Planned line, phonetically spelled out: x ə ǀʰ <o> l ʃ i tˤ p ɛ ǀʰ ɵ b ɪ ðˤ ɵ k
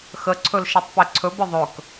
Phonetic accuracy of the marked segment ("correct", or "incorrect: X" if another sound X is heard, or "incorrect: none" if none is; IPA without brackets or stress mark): incorrect: ɵ